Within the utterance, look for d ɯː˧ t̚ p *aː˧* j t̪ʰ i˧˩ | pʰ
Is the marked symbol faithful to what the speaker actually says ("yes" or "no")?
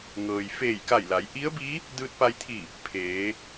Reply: no